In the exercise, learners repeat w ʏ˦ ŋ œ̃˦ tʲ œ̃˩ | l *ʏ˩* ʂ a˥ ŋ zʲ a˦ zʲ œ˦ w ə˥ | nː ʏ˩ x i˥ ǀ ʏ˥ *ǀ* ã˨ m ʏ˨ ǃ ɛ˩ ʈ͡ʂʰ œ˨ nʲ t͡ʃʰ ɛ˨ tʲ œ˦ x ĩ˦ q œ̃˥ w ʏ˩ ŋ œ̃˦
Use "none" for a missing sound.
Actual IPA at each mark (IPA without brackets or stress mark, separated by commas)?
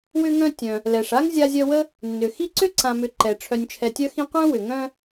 ɛ˩, ǀ